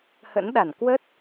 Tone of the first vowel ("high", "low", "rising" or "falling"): rising